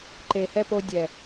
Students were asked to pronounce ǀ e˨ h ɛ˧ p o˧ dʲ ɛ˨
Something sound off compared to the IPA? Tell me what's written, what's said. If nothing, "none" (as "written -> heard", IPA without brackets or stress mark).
ǀ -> ǃ